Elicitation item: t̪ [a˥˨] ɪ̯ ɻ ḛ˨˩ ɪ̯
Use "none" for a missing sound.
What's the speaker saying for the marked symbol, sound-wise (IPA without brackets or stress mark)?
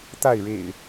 a˥˨